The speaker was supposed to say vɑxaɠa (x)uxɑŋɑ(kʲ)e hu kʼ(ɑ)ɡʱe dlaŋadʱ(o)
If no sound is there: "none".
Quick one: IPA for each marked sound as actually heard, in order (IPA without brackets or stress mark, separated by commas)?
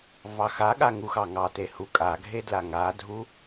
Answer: ŋ, t, a, u